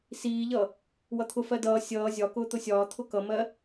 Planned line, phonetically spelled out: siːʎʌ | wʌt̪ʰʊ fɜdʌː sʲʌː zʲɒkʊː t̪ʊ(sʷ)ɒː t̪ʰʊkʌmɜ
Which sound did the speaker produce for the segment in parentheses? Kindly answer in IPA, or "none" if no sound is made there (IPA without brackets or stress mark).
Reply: sʲ